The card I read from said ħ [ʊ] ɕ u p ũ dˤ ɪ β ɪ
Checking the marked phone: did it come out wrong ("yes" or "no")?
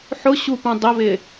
no